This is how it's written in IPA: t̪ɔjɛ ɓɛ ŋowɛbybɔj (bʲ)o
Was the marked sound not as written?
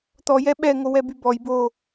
yes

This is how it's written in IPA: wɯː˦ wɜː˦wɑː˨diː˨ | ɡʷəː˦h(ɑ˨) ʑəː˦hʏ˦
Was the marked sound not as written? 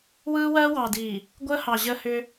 no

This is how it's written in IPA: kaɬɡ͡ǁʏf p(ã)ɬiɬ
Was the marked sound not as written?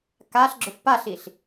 yes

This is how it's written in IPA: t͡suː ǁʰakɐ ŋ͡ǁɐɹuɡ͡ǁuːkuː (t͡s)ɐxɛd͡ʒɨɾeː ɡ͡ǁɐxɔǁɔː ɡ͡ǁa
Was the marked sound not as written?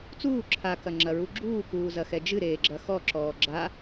yes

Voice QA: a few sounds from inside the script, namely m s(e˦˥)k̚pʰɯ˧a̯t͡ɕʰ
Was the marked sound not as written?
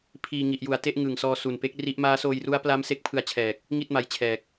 no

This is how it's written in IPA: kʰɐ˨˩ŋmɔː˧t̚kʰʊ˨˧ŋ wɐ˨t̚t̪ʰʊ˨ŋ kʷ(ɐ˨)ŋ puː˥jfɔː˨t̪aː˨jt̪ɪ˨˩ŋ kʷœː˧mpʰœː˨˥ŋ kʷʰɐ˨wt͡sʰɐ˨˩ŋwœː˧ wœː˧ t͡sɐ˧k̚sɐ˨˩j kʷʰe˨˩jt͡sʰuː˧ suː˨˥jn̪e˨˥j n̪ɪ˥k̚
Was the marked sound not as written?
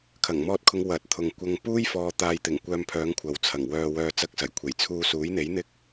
yes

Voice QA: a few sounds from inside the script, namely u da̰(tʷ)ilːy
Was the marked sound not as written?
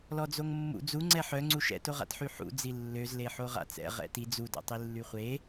yes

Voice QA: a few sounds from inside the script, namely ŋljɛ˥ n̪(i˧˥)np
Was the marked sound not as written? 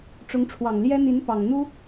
no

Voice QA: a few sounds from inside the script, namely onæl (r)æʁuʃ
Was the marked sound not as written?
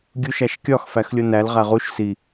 yes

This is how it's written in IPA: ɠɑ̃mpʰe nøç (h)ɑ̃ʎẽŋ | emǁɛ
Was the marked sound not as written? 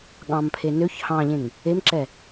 no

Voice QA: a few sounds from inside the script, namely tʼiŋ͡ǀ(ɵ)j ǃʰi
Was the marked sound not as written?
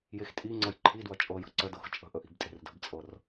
yes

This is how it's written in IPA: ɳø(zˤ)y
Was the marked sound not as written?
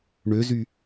yes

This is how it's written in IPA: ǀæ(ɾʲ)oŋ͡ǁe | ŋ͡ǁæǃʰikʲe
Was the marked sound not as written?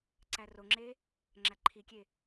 yes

